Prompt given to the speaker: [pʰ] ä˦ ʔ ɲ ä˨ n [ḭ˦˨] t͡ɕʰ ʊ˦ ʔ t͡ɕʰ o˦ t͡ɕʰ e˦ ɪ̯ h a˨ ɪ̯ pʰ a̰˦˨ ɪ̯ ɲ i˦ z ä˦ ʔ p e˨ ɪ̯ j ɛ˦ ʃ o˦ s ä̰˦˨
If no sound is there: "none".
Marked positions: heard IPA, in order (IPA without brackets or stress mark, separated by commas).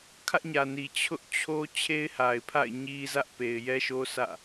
kʰ, i˨